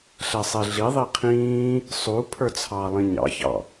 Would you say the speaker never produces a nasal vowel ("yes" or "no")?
no